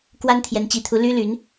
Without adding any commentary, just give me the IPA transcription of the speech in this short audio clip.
k w a˥ n t̪ʰ j ɛ˧˥ n t͡ɕ i˧˥ t̪ʰ u˧˥ l y˥ l y˧˥ n

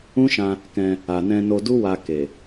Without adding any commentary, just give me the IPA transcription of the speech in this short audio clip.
ũ˦ ʃ ã˧ | k ɛ̃˧ | a˨ n ɛ̃˧ n o˧ d u˦ w a˧ k e˨

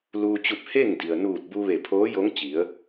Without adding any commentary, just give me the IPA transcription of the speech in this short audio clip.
l uː˧ t͡ɕ u˧ p̚ h e˥˨ ŋ d i˩ ə̯ n uː˧˩ t̚ b u˧ ʋ e˧˩ pʰ oː˧˥ j o˧˥ ŋ t͡ɕ i˩˧ ə̯

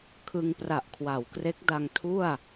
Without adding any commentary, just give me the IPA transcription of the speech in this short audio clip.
kʰ ɯ˧ ŋ p r a˨˩ ʔ kʰ w a˩˦ w k r e˦˥ k̚ d a˧ ŋ tʰ u˥˩ a̯

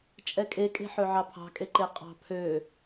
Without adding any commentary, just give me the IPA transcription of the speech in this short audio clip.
t͡ʃʼ ɛ kʼ e kʼ e̤ ħ ø ʕ ɑ pʰ ɑ̤ kʼ e ǃ e qʼ ɑ̤ pʰ ø

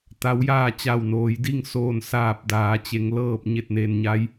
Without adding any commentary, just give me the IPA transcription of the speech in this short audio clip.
t̪ a˧˥ w j aː˥˨ t͡ɕ a˧˩ w n oː˩˧ j d i˥˨ ŋ s oː˧˩ n s aː˧˩ p̚ d aː˩˧ t͡ɕ e˩˧ ŋ l ɤː˧˩ p̚ ɲ e˧˩ t̚ n e˩ n ɲ a˧ j

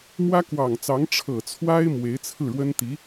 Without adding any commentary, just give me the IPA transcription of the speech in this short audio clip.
m w ä˥ k w ɑ˨˩ ŋ t͡s ɑ˧˥ ŋ ʈ͡ʂʰ ɤ˨˩ t͡sʰ w a˥ ɪ̯ m w e˧˥ ɪ̯ t͡sʰ ɹ̩˥˩ ɻ w ə˥ n t̪ i˧˥

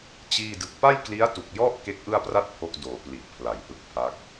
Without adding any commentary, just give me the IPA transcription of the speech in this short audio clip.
t͡ɕ iː˥˩ d ɯ˦˥ k̚ p a˥˩ j k l i˦˥ a̯ t u˨˩ k̚ j ɔ˥˩ ʔ k e˦˥ k̚ ʔ ɯ˥˩ a̯ p r a˥˩ t̚ pʰ o˦˥ k̚ d oː˩˦ p l i˨˩ ʔ pʰ l a˨˩ j h ɯ˦˥ k̚ pʰ a˦˥ k̚

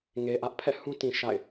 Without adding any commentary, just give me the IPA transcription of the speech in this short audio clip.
ŋ e˨ ʔ ä˦ ʔ pʰ ɛ̰˦˨ h ũ˦ t ĩ˨ ʃ a̰˦˨ ɪ̯

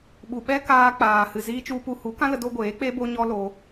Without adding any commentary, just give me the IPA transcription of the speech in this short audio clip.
ɓ u˨ ɓ ɛ˦ k aː˧ k͡p aː˨ h ɨ˨ z iː˧ t͡ʃ u˧ p u˧ h u˨˦ k ã˦ l ə˧ d o˧ ɡʷ eː˨˦ k͡p e˦ b o˦ ɲ ɔ˦ l o˧

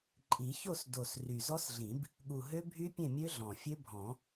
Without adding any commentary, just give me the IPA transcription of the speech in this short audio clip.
ǃʼ i˨˩˦ ç o˥˨ s d o˨˩ s r y˨˩ z ɔ˦˥ s ɮ ĩ˨˩˦ b | ɠ u˨˩ ɦ ø˦˥ bʱ y˦˥ pʲ ẽ˥˨ mʲ ø˦˥ ɮ ɔ̃˨˩ fʲ ø˦˥ bʱ ɔ̃˨˩˦

